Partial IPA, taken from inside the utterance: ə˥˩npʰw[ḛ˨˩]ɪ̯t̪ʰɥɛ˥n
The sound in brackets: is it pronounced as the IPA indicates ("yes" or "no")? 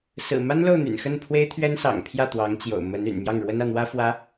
no